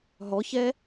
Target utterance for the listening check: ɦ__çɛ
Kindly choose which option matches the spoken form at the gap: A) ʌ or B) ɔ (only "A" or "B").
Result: B